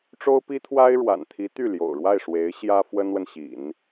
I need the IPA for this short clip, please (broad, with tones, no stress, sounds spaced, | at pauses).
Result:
ʈ͡ʂ o˥ ʊ̯ p i˥ t̪ʰ w a˥ ɪ̯ ɻ w a̰˨˩ n t̪ʰ i˧˥ t̪ y˥˩ l j o̰˨˩ ʊ̯ ɻ w a˥˩ ɪ̯ ʂ w e˧˥ ɪ̯ ɕ j ä˥ f w ə˥ n w ə˨ n ɕ ḭ˨˩˦ n